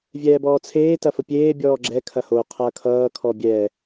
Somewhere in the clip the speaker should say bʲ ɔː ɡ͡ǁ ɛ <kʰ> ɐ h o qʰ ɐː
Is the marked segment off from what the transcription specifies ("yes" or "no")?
no